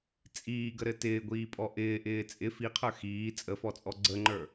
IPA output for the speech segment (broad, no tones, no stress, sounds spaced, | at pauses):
t͡sʼ iː ɡ ə ɾ ɘ t ɪː ɡʷ iː pʼ ɔ ʔ ɪː ʔ ɪː t͡sʼ ɪ f i qʰ ə˞ x iː t͡sʼ ə f ɔ t͡sʼ ɔ ɡ͡ǀ ə ŋ͡ǃ ə˞